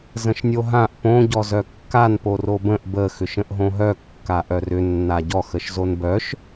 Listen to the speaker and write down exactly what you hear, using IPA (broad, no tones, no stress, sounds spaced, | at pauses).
z ə̃ ʃ nʲ o ɦ ã ʔ p õ ɟ ɔ z œ kː a n p o r o b ə̃ ʔ b ə x ʏ ʃ ə̃ ʔ ɦ õ ɦ œ kː a ʔ œ r ʏ nː a ɟ ɔ x ə ʃ z o n b œ ʃ